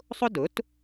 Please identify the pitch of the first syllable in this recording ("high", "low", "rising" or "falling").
high